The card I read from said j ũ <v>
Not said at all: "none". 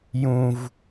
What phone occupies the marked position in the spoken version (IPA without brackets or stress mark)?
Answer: v